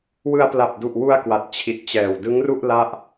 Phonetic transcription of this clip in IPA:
w ɯ˧ a̯ p l a˨˩ p̚ d u˨˩ ʔ w u˧ a̯ k w a˨˩ t̚ t͡ɕʰ i˨˩ t̚ t͡ɕ ɛː˨˩ w d ɯ˦˥ ŋ r u˥˩ ʔ l a˥˩ ʔ

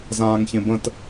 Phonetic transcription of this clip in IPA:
z ãː ŋ ç ẽ b ə̃ t

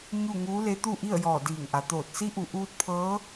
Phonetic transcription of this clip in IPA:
ɲ u˥˨ ŋ uː˧˥ l e˧˥ t̪ u˥˨ ʔ i˥˨ ə̯ j ɔː˧˩ d iː˧˩ ŋ ʔ a˩˧ t̪ oː˧˩ t̚ s i˧˥ ʔ u˩˧ ʔ uː˧˥ t̚ pʰ ɤː˧˥

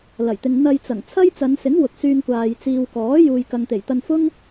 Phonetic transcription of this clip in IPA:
l ɐ˨˩ j t̪ ɪ˨ ŋ n̪ ɐ˧ j t͡s ɐ˨˩ ŋ t͡sʰ ɐ˥ j t͡s ɐ˨˧ n s ɪ˨˥ ŋ w ʊ˨ k̚ s yː˧ ŋ kʷ aː˨ j t͡s iː˨ w k ɔː˨˥ j uː˨ j k ɐ˨ ŋ t̪ e˨˩ j t̪ ɐ˧ n f ʊ˥ ŋ

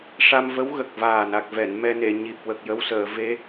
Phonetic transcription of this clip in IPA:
ʂ a˧ m v ə˧˥ w ɣ ə˨˩ k̚ v aː˨˩ n a˨˩ k̚ v ɛ˨˩˨ n m ɛ˧ n e˨˩˨ ɲ i˨˩ p̚ w ə˨˩ k̚ j ə˧ w s əː˨˩˨ v e˧˥

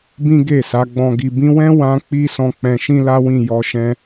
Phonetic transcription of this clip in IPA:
b ĩ˦ ɡ e˦˨ s a˨˦ ɡ͡b ɔ̃˧ ɡ i˨ b ĩ˧ w ɛ̃˦ w ã˦ k͡p i˦ s ɔ̃˧ k͡p ɛ̃˧ ʃ ĩ˦ l a˦ w ĩ˦˨ j ɔ˧ ʃ ɛ̃˧

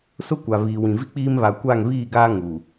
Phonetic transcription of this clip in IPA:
s ʊ˦ kʷ a˨ β iː˨ w ĩ˨ v i˦ k͡p iː˦ m β a˨ kʷ a˦˨ ŋ β iː˦˨ ɡ aː˦ ŋ u˨

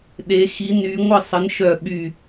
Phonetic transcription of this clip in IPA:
ɗ e˨˦ x i˨˦ n y˨˦ ŋʷ ə˦˨ sˤ ə˨˦ n ʃ œ˦˨ ɓ y˦˨

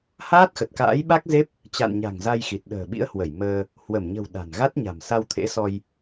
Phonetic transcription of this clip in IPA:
h aː˦˥ t̚ x ə˨˩ t̚ k a̰ː˧˥ j ɓ a˦˥ k̚ z e˦˥ p̚ | t͡ɕ a̰˧˨ n ɲ a̤˨˩ ŋ z a˧ j x i˨˩ t̚ ɗ ə̤ː˨˩ ɓ ḭ˧˥ ə̯ h w ə˧˩ j m əː˧ | h w ə˧˩ m ɲ ə̤˨˩ w ɗ a̤˨˩ n ɣ a˦˥ t̚ ɲ a̤˨˩ m s a˧ w t̪ʰ ḛ˧˥ s ɔ˧ j

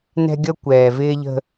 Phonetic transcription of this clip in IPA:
n ɛ̤˦ ɡʲ ʌ˦ kʷ ɛː˨ v ɪː˦ ʎ ə̤˦

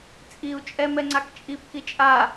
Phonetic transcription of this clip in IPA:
t͡sʼ i u̯ t͡ʃʼ ɛ m ɛ ŋ͡ǀ a k t͡ʃʼ i p k i t͡ʃʼ a

